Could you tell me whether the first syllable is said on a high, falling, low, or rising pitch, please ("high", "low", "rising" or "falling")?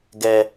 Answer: high